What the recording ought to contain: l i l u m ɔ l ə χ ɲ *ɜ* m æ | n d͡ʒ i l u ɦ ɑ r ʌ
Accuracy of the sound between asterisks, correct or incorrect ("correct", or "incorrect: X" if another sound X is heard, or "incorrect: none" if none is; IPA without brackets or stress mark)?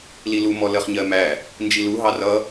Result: correct